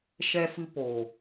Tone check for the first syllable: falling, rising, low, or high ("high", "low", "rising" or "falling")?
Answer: high